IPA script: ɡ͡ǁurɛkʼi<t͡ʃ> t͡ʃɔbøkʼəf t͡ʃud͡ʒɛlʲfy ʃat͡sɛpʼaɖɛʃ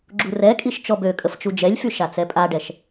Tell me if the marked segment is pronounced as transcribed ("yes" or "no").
no